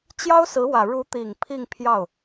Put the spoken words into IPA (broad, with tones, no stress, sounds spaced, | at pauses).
t͡ɕ j ɑ˥ ʊ̯ s ɹ̩˧˥ w ä˨˩ ɻ u˧˥ t̪ i˨˩ ŋ pʰ i˥˧ ŋ pʰ j ɑ˥˩ ʊ̯